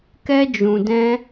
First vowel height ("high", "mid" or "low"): mid